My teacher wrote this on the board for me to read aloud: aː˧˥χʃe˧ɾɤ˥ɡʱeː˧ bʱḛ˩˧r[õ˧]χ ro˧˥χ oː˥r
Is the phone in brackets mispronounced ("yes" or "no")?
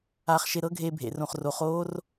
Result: no